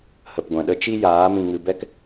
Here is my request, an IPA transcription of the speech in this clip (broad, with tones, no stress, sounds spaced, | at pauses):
h ə˨ p ɡʷ ɛ̃˨ ɗ ə˧ t͡ʃ i˦ j aː˨˦ m ĩ˨ ŋ ɨ˨ b ɛ˦ k